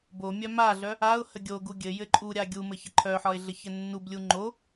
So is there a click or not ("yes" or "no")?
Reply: yes